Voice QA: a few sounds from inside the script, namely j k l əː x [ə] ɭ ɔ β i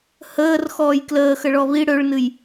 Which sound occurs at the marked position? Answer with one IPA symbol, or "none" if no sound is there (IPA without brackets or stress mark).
ə